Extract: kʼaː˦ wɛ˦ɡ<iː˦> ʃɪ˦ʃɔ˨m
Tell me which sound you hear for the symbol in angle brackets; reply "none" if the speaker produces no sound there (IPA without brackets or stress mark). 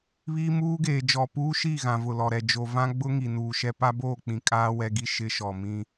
i˦